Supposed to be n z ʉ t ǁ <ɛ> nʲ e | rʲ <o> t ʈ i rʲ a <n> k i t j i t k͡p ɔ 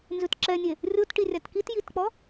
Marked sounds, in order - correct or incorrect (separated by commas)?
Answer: correct, correct, incorrect